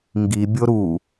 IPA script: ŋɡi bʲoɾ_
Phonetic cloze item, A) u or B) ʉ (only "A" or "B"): A